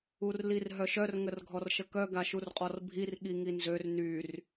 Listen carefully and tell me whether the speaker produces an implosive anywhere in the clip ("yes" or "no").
yes